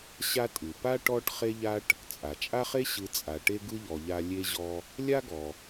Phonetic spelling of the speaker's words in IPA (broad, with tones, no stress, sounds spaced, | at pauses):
ɕ a˦ tʼ ɯ˩ p a˥ ʈ ɔ˥ ʈ χ e˥ ʎ a˥ ʈ | t͡sʼ a˩ t͡ʃʼ a˥ χ e˥ ɕ ɯ˨ t͡sʼ a˩ ʈ e˦ ɡ ɯ˥ ʎ ɔ˨ ʎ a˦ lʲ e˥ ʑ ɔ˦ | lʲ a˥ ɡ ɔ˩